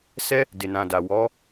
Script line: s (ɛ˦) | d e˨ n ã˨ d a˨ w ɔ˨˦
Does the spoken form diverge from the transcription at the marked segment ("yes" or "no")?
no